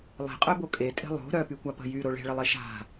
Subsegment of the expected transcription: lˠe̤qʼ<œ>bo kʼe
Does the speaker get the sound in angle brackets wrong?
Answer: no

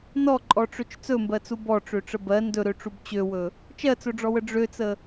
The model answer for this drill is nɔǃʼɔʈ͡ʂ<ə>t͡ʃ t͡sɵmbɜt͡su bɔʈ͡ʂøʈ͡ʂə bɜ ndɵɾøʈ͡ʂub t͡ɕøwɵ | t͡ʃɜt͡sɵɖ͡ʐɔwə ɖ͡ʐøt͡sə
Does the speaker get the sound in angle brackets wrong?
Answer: yes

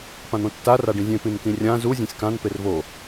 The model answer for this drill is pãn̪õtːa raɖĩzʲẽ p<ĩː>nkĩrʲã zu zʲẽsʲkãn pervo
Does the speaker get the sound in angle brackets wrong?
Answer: yes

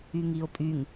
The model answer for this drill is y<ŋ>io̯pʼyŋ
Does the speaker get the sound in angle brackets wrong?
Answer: no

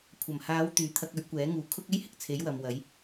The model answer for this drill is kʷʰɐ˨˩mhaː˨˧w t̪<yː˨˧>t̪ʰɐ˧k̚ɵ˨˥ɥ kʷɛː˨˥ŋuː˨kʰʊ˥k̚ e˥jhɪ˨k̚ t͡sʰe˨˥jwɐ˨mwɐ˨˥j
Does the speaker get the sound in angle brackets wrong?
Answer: no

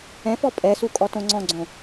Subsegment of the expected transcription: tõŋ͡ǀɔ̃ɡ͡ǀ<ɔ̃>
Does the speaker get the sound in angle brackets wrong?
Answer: yes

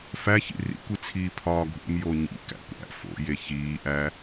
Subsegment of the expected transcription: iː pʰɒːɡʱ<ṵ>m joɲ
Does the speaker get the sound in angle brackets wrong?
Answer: no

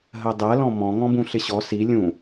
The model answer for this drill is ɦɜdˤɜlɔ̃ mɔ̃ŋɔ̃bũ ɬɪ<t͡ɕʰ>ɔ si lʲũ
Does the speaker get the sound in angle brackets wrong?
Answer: yes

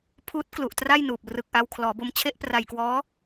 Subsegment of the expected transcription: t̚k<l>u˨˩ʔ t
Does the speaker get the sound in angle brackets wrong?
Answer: no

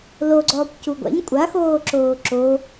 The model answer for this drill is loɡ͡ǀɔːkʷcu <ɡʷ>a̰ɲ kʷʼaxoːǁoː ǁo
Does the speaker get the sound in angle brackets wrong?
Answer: no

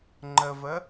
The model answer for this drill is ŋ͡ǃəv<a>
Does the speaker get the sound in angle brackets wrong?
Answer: yes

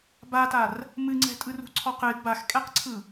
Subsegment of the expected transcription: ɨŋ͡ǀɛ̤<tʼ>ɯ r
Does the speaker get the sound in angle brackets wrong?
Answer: no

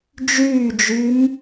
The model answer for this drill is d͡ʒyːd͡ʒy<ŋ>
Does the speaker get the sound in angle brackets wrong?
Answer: yes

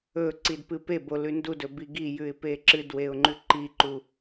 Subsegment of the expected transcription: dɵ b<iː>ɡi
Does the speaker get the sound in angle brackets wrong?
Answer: yes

